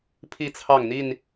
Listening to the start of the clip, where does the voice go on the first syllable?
falling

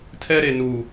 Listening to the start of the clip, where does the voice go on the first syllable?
high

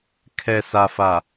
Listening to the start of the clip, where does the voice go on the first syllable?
low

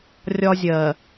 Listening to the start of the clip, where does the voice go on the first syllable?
high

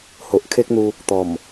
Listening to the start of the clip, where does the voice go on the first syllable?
low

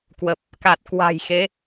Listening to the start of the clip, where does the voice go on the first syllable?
low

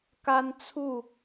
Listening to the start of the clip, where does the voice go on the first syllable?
high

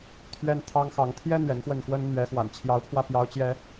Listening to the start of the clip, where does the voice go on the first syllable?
high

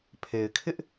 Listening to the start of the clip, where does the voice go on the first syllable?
low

